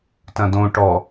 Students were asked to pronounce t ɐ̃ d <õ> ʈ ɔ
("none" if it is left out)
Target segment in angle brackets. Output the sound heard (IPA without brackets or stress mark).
õ